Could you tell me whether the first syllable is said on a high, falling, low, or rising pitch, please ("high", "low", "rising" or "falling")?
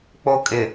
high